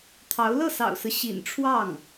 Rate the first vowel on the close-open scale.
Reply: open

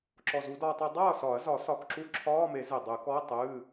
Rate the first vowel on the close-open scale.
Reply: mid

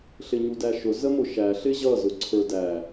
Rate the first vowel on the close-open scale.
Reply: close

